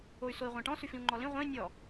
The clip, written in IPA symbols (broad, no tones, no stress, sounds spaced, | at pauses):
o y̯ s o i̯ ʁʷ ã ʈ ɔ̃ s y f ĩ u̯ ŋ͡ǃ ɔ l ĩ ʁʷ ẽ i̯ nʲ ɔ